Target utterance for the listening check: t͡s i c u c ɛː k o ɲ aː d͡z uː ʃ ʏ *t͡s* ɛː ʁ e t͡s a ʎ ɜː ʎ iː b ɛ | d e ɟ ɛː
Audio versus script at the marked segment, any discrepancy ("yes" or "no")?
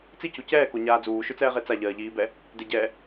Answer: no